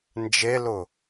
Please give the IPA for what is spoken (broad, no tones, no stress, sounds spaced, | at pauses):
n d͡ʒ e l ʊ